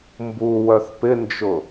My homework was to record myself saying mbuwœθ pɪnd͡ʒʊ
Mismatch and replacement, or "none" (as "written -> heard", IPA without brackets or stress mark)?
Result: none